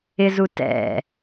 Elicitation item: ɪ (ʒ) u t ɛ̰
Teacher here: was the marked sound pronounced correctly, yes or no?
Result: no